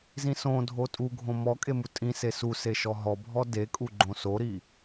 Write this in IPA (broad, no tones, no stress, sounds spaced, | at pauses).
z ĩ s õ dʱ o tʼ u ɡʱ õ m ɔ kʼ e m u tʼ ĩ s e s u s e ʃ ɔ ɦ ɔ bʱ ɔ d e kʼ u ɡ͡ǃ õ s o ɾ i